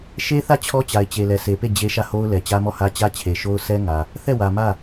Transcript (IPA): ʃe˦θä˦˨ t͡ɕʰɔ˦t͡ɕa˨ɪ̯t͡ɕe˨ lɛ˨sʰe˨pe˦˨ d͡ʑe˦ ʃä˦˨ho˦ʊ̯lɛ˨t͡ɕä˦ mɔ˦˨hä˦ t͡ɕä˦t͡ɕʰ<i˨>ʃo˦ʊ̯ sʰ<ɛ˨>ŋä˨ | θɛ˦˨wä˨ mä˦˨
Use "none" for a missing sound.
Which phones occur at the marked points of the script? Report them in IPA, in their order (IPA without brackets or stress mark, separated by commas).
e˨, ɛ˦